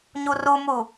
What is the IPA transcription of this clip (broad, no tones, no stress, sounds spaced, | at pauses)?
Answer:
ɲ u r u m u